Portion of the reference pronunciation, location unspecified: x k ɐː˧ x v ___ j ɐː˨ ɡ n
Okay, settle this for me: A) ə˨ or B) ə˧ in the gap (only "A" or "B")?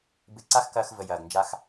A